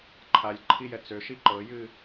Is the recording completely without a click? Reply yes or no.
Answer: no